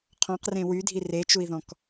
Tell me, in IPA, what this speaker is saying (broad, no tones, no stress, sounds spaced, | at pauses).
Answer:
qʰ ɔ̃ q r ẽ w y dʱ i r e t͡ʃ u i̯ ð ɔ̃ k